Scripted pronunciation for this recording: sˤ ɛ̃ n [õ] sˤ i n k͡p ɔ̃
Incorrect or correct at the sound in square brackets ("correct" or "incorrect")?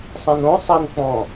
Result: correct